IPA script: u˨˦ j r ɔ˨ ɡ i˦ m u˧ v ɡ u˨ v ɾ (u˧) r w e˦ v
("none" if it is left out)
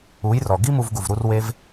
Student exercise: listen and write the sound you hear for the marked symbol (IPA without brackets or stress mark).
u˧